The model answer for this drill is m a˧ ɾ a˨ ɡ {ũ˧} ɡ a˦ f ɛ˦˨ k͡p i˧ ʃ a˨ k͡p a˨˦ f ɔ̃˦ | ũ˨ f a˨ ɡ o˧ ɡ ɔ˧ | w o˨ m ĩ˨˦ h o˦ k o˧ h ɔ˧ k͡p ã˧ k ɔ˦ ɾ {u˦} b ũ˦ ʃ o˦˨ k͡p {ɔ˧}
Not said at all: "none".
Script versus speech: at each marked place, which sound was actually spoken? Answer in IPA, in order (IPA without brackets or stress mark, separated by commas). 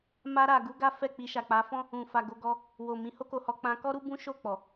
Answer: u˧, u˦, ɔ˨